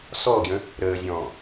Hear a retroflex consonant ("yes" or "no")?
no